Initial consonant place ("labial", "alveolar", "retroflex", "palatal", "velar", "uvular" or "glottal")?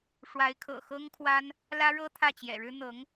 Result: retroflex